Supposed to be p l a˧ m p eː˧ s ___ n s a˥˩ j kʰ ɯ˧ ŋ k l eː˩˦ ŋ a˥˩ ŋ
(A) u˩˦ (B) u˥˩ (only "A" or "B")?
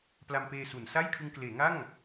A